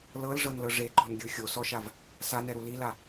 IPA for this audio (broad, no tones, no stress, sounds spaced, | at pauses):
l ɤ l ʐ ɤ n l ɤ ʐ e ǃ ɔ̤ n ɡʲ ɯ xʲ o s ɔ ʃ a v | s a n ɛ ɾ u l i l a